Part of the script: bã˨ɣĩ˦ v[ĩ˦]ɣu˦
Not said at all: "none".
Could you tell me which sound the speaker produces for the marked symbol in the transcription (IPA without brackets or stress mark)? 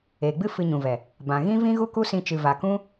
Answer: ĩ˦